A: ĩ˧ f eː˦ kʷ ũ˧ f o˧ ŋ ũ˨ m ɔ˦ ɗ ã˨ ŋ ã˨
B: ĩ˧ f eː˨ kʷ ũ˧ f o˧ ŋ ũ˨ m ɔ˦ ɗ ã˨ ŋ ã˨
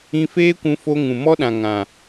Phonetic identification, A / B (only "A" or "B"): A